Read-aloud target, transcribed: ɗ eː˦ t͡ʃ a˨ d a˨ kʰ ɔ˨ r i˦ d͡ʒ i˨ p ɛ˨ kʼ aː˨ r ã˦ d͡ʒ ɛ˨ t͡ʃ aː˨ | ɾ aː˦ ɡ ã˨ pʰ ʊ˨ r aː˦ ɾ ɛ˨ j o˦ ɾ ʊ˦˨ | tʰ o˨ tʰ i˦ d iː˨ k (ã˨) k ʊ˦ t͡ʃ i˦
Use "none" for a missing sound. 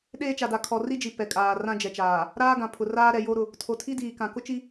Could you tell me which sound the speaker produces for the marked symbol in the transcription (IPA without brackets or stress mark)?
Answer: ã˨